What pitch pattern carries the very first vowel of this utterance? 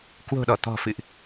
low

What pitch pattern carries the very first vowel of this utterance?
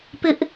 high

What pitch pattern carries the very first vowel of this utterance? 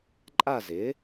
falling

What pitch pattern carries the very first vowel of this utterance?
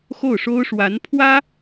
falling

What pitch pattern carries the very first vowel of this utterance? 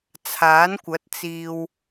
rising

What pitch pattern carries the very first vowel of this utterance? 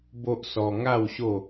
high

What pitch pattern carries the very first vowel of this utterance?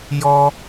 high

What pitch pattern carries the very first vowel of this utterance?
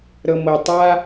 low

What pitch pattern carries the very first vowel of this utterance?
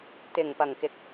low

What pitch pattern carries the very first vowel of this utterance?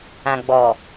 low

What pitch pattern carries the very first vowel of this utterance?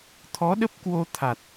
rising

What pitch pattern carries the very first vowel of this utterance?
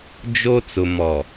high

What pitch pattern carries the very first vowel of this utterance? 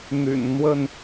low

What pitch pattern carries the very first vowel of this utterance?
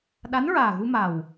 rising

